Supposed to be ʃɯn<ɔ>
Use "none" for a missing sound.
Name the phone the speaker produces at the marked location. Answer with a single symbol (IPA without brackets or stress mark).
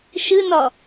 ɔ